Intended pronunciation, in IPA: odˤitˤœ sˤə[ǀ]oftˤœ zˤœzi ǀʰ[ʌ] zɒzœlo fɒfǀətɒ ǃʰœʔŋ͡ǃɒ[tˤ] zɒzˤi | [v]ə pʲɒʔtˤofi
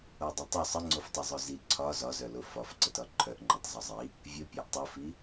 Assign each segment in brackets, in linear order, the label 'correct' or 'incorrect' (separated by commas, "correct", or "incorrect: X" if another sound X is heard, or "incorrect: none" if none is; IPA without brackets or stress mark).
incorrect: ŋ͡ǀ, incorrect: ɒ, correct, incorrect: vʲ